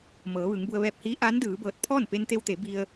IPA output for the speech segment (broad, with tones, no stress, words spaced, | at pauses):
mɤː˩˧ʋɯː˩˧ŋbu˧ə̯ ʋɛː˧˩p̚hiː˧˥ ʔaː˧˥ndɯː˩˧bɤː˧˩t̚ pʰɔː˥˨npe˧nt̪e˧wt̪e˩˧ bi˧ə̯